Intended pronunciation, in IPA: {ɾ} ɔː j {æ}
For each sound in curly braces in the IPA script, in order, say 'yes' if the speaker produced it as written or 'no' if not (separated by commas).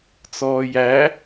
no, yes